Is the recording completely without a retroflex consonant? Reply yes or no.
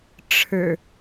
no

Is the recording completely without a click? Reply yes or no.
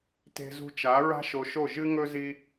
yes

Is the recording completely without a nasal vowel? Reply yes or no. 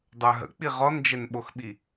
yes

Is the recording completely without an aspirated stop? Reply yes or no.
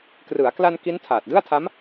no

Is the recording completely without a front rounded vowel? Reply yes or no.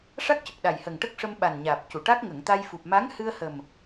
yes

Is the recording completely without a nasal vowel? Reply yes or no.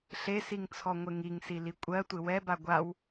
yes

